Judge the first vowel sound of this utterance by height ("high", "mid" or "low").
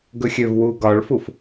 mid